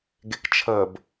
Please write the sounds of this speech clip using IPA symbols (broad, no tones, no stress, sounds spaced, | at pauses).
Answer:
ɡ e k t͡ʃʰ ə b